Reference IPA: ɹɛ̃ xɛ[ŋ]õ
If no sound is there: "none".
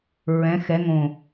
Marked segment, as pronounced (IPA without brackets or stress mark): ŋ